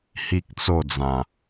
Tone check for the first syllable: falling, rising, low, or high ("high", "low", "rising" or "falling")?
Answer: high